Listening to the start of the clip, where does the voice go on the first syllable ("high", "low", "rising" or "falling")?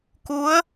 rising